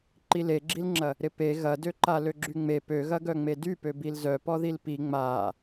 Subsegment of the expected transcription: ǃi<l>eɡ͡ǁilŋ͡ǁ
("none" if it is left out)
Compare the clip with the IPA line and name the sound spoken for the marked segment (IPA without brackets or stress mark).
l